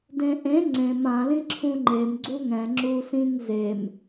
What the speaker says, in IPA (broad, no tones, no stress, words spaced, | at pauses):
dẽʔẽ ŋ͡ǀẽm ã lĩǁʰũŋ͡ǃem ɡ͡ǀuŋɛ̃ ŋ͡ǁusĩŋ zem